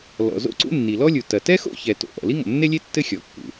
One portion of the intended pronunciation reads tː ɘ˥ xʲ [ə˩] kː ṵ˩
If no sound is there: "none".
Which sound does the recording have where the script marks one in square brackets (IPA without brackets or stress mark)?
ɔ˩